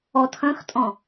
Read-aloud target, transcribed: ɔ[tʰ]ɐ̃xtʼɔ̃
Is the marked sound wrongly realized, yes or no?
no